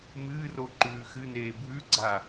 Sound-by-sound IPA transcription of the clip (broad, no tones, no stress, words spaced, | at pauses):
mɨːro ǃʉːxɨneː bʱʉɡ͡ǀa